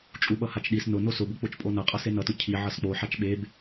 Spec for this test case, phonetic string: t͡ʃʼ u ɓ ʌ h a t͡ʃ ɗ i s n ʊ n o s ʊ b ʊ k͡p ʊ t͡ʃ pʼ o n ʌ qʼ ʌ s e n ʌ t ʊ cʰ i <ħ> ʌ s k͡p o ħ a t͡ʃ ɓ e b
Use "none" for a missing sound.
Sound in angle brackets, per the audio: ʕ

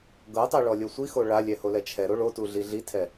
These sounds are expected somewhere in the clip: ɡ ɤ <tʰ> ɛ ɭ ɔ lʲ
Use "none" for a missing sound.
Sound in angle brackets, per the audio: tˤ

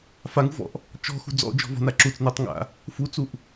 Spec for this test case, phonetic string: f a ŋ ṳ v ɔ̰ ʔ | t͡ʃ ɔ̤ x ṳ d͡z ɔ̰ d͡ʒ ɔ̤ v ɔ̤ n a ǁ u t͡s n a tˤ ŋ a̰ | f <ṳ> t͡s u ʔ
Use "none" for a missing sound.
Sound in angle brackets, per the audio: u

